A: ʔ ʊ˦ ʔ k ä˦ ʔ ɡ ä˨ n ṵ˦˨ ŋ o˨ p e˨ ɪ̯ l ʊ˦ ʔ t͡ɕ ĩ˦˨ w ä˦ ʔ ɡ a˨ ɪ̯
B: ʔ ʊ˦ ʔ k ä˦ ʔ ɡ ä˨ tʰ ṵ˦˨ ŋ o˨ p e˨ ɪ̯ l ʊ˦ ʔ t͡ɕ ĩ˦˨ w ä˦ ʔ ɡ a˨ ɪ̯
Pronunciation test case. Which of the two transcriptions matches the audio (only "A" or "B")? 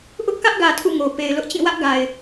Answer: B